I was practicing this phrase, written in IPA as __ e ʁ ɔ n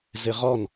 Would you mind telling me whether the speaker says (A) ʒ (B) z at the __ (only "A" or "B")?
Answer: B